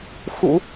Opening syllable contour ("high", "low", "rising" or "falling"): low